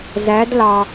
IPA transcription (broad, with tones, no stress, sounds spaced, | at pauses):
z æ˧˥ d l ɑ˧